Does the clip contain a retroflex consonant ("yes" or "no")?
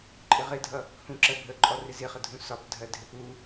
no